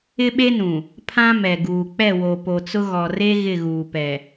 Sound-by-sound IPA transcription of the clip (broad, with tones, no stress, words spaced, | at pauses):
ɪ˦ɓe˦nũ˨ | pʰã˦mɛ˨ ɡuː˨k͡pɛ˦˨wo˨ po˨t͡sʊ˦ ɣɔ˨re˦ ɣɪ˦˨ɣuː˨pɛ˨